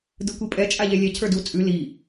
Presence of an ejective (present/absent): present